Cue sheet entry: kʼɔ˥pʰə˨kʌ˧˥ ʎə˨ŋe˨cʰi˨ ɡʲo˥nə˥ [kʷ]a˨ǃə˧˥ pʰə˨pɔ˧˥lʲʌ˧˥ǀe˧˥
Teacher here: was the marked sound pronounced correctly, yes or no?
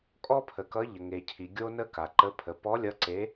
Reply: no